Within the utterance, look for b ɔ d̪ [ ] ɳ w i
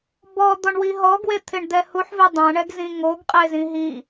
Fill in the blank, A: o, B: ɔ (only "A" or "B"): B